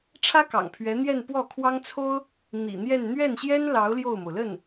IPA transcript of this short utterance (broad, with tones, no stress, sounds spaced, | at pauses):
ʈ͡ʂʰ ä˥ k ɑ̰˨˩ ŋ pʰ ɥ ɛ˧˥ n̪ j ɛ˥˧ n p w ɔ˥˩ kʰ w ɑ˥ ŋ t͡sʰ o˥ ʊ̯ | n̪ ḭ˨˩ n̪ j ɛ˥˧ n n̪ ɥ ɛ˥˩ n ɕ j ɛ˥ n l ɑ˧˥ ʊ̯ l j o˥˩ ʊ̯ m o˩ ʊ̯ l ə˥˩ n